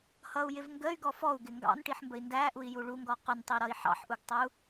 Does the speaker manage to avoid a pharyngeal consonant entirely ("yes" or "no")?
no